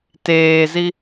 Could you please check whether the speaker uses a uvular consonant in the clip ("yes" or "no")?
no